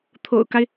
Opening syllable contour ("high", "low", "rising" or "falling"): low